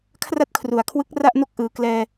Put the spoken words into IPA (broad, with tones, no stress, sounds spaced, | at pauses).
kʰ r a˥˩ t̚ kʰ r u˩˦ a̯ kʰ w ɯ˦˥ k̚ r a˥˩ ʔ n o˥˩ k̚ ʔ ɯː˨˩ k l ɛː˧